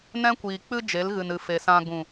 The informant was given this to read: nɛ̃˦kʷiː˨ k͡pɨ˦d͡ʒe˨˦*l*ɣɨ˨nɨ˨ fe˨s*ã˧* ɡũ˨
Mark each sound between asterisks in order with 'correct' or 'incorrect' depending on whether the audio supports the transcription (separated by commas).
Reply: correct, correct